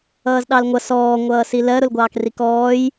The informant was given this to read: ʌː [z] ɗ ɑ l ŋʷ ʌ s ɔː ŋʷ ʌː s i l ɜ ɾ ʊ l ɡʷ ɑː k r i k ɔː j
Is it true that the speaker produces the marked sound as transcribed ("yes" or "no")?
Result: yes